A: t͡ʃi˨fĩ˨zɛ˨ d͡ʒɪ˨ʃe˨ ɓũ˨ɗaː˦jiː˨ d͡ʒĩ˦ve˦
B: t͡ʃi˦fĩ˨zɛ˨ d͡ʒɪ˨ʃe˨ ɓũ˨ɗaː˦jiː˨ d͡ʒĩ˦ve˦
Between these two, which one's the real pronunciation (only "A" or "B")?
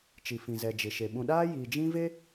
A